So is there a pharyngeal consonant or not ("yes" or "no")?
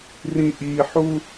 yes